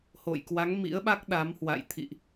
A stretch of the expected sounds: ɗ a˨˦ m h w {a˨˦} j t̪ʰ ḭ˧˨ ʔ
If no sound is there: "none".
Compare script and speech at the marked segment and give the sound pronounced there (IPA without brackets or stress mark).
a̰˧˨